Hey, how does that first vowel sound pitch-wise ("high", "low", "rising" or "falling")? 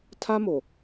high